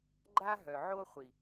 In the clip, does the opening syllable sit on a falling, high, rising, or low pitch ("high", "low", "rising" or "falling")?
high